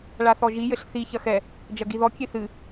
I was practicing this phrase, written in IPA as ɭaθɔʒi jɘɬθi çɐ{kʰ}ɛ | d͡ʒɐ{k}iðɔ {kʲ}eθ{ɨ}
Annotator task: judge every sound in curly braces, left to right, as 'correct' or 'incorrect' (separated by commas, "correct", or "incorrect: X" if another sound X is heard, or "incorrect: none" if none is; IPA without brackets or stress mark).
incorrect: x, incorrect: ɡ, correct, correct